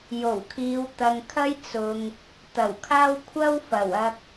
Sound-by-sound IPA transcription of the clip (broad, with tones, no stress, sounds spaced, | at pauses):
j o˨˩ w kʰ iː˨˧ w t̪ ɐ˨ ŋ kʰ ɐ˥ j t͡s ʊ˨ ŋ | t̪ ɐ˨˩ w kʰ aː˥ w kʷʰ ɐ˥ w f ɐ˨˩ w ɐ˨ k̚